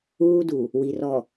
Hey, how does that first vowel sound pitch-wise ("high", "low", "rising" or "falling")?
high